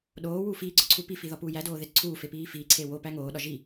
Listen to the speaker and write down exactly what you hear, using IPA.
ɗ oː w uː f iː ɡ͡ǀ ɒ ǀʰ u p i f i ð ɒ p uː j æ d oː ð e t ǀʰ uː f e p iː f iː ǀʰ e w o p æ ŋ oː ɗ ɒ ʒ i

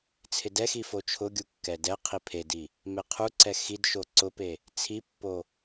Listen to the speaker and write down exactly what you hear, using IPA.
t͡sʰ ɪ d ɛ x i f o t͡ʃʰ ʊ ɡʲ u kː ɛ d ɛ qʰ i pʰ e d i | m e qʰ u ǀ ɛ x i d ʃ o ǀ ʊ p e | t͡sʰ i pː o

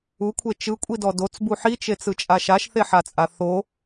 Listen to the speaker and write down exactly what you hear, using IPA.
u kʷʰ e t͡ʃ ɯ kʷʼ i d ɔ d o t͡s b u ħ i t͡ʃ e t͡s ɯ t͡ʃʼ a ʃ a ʃ θ e ħ a t͡sʼ a θ o

